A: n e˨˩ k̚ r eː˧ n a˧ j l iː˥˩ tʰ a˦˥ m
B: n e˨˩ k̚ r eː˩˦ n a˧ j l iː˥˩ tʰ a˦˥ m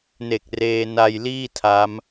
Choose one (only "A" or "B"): A